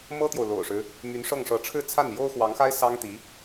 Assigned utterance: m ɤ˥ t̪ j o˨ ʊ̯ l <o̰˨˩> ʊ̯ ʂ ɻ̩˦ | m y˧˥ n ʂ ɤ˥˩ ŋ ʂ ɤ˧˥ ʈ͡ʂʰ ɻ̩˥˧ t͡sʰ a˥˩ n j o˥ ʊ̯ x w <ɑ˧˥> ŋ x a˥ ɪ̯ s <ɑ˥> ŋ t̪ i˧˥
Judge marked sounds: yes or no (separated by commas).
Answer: yes, yes, yes